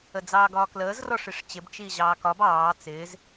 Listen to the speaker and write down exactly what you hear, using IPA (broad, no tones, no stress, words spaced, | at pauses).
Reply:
əd͡zɑːɡɒːkləːz rɔʂiʂt͡ɕɪb t͡ʃiːʑɑːkɒb ɑː t͡sɪːz